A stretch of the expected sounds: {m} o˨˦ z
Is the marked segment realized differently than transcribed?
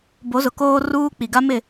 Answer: yes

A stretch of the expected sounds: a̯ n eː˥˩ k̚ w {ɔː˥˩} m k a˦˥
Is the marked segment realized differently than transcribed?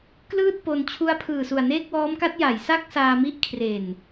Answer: yes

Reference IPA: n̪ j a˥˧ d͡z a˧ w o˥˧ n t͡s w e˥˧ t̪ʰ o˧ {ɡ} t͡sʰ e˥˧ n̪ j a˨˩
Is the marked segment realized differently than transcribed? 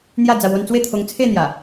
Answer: yes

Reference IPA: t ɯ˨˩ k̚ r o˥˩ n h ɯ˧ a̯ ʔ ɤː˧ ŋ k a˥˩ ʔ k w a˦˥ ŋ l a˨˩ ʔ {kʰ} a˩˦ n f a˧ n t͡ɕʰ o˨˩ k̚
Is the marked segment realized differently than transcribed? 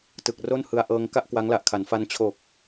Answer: no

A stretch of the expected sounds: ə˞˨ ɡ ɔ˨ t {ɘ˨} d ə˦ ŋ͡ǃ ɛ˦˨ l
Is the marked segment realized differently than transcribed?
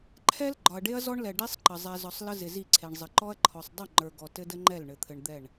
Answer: yes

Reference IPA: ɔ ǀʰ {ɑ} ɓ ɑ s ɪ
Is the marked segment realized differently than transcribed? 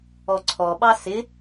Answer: yes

